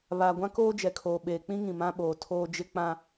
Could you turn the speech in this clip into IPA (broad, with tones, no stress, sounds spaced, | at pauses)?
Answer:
β aː˨ ɡʷ ã˦ k oː˦ d͡ʒ ɛ˨ kʰ oː˨ ɓ eː˨ k͡p ĩ˦ ŋ ĩ˨ m ã˦ ɓ oː˨ tʰ oː˦ d͡ʒ ɪ˦ k͡p ã˦